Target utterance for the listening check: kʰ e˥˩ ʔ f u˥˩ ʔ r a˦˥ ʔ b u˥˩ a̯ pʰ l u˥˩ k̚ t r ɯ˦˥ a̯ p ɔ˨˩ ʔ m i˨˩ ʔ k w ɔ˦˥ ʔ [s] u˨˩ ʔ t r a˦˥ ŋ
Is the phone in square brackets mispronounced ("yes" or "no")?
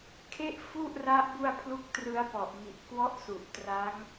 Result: no